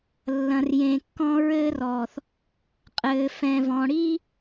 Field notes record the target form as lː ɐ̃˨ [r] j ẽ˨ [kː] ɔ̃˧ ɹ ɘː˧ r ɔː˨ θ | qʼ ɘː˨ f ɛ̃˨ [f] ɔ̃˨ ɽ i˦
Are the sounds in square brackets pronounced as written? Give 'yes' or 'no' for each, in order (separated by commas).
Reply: yes, yes, no